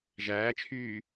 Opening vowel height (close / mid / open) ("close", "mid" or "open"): open